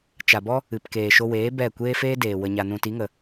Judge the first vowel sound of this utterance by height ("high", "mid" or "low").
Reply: low